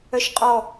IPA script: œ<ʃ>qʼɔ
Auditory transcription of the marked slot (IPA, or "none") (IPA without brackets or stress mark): ʃ